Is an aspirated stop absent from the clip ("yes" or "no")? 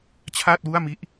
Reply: no